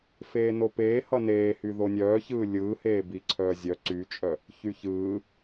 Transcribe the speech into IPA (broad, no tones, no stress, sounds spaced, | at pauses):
f eː n o p eː h ʌ n eː h y ð o nʲ œː ç ɯː lʲ ɯː h eː b i ǀʰ œː zʲ œ ǀ y t͡ʃʼ œ | ç y ç ɯː